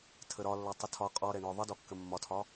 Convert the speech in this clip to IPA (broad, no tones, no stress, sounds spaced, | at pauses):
tʰ ə ɾ ɒ lː ɒ tˤ ə tʰ ɒ qʼ ɔ ɾ ɛ ɳ ɔ ðˤ ə d ɔ kː ə mː ɒ tʰ ɒ